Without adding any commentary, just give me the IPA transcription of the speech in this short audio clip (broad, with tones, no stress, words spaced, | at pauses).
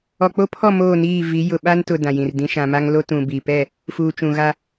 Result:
ɔ˨k͡po˦pʰɔ˦˨ moː˦˨niː˦˨ vi˨˦ jʊ˨ɓa˦ntʊ˨ dã˨jĩ˨rdĩ˦ ʃã˨ma˦ŋ lo˦tũ˨bi˨ pɛ˦˨ | fuː˨t͡ʃũ˨ɣa˦